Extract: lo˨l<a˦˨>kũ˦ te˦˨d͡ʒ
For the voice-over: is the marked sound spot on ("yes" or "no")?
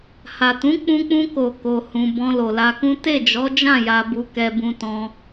no